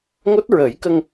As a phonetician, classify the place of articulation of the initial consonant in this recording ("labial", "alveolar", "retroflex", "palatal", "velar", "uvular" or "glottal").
velar